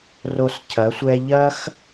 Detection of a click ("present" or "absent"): absent